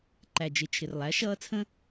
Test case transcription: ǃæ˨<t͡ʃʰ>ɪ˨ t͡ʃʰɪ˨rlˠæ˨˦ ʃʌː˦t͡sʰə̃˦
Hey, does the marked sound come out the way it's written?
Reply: no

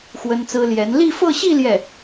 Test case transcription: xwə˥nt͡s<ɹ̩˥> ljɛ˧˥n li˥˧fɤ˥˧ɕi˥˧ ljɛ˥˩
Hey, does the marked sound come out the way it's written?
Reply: yes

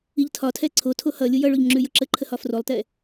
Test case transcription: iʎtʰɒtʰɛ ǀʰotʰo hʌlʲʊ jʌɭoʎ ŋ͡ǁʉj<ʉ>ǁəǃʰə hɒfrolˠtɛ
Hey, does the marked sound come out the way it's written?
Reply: no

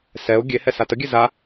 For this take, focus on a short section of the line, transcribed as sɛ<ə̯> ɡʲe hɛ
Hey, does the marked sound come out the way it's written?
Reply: no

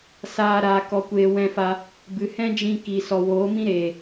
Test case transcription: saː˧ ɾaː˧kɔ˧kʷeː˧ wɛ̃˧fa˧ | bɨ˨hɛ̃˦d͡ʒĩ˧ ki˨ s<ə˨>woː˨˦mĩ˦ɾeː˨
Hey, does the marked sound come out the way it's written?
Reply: no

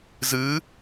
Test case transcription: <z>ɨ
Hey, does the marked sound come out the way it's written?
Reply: yes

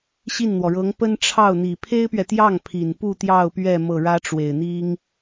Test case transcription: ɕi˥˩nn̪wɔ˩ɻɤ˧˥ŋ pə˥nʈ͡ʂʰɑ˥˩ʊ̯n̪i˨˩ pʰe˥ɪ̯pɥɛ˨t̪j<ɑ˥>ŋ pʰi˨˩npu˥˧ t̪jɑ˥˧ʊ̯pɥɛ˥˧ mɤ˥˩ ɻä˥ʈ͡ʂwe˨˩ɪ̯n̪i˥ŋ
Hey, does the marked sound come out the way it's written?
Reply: no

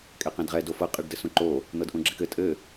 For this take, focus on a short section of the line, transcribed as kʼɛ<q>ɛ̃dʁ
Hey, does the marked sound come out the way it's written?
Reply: yes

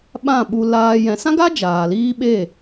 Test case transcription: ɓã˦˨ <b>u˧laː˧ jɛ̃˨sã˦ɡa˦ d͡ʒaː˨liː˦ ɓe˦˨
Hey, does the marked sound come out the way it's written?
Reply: no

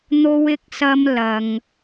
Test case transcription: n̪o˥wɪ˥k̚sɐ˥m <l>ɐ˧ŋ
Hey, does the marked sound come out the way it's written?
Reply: yes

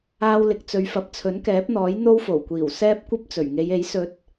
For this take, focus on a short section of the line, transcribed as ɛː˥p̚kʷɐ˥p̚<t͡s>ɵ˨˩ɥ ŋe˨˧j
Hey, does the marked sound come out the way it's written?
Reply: yes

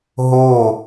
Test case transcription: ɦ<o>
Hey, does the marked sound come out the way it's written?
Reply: yes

